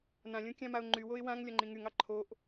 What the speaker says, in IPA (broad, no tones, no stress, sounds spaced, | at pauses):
n ã lʲ õ kʲ ã m a ʊ̯ ŋ͡ǃ y w o ɪ̯ w ã ŋ lʲ ɒ ŋ͡ǃ ĩ ŋ y ŋ ɑ ǃʰ o ʔ